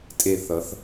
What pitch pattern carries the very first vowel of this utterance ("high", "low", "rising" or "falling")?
low